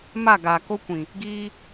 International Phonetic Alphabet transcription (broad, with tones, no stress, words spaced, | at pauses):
ma˦˨ɡa˨ko˦kʷĩ˨ | ɡiː˦